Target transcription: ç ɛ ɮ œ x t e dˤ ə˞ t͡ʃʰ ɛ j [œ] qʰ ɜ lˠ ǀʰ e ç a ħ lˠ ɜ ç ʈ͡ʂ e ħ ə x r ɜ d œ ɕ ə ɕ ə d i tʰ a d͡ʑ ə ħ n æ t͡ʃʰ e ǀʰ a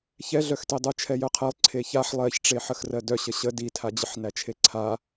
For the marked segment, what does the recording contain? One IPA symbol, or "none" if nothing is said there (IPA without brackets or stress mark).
œ